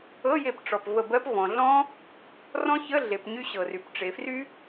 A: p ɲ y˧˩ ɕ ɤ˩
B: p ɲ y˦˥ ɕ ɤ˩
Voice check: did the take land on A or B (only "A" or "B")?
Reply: B